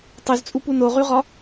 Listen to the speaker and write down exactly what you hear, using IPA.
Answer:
tˤ y z t͡sʼ u p u n o ʁ y ʁ ɒ

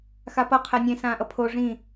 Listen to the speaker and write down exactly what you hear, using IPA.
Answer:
x a p ʌ qʰ ɛ nʲ ẽ s ãː ʔ ʌ pʰ o ʐ ĩ

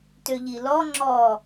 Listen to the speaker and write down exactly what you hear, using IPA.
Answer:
t ø ʎ i l ɔ ŋ͡ǁ ɔ

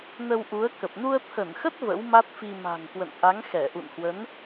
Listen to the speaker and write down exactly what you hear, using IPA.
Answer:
n ə˧ w ʔ u˨˦ ə̯ k ə˨˩ p̚ n u˧ ə̯ t̪ʰ ə˧˩ n x ə˦˥ t̚ v ə̰˧˥ w m a˦˥ t̚ f i˧ m a̤˨˩ ŋ k w ə̰˧˨ n ʔ a˨˦ ŋ x ɛ˧˩ ʔ ṵ˧˨ n h w ə˨˦ n

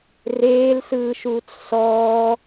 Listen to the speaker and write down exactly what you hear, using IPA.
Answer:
r eː l s ɯː ʃ uː t͡s s ɔː

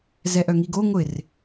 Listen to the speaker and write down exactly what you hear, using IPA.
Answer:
z ɛ ʔ œ ŋ i ɡ o ŋʷ ɪ r

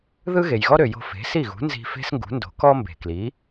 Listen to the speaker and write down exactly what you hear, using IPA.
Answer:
ð ɯ˥ ɣ e˩ j ɣ ɔ˥ ɾ ø˩ j o̤˧ f e̤˩˥ s i˥˩ ɣ ṳ˩˥ n z i̤˧ f e̤˥ s ŋ ɡ ṳ˩˥ n d o̤˩˥ k ɔ˥ m b e̤˩ k l i˩˥

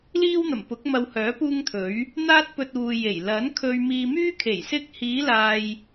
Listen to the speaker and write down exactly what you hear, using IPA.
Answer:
l iː˥ w n̪ ɐ˨˩ m p ʊ˨˥ k̚ m ɐ˧ w h œː˨˥ p uː˥ ŋ t̪ʰ ɵ˨˥ ɥ | n̪ aː˥ t̚ p ɵ˧ t̚ uː˨ j e˨˩ j l ɐ˨˥ n kʰ ɵ˧ ɥ m iː˧ m yː˥ kʰ e˨˩ j s ɪ˧ k̚ h iː˨˧ l aː˨ j

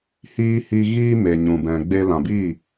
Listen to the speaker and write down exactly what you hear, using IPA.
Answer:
h iː˦ h i˧ ɣ iː˦ m e˨ ɲ ũ˨ b ɛ̃˨ ɡ͡b e˧ l ã˨ b i˦˨

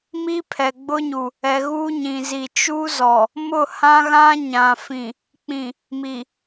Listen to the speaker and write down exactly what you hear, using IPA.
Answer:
m i˦ pʰ ɛ˨ ɡ͡b ʊ˦ ɲ u˨ | ɛ˨ ɣ uː˦ ɲ ĩ˨ z i˨ t͡ʃ u˦ z ɔ˨ | m ʊ˦˨ h ã˦ ɣ ã˦ ɲ ã˨ f ĩ˨ | k͡p ĩ˨ | m i˨

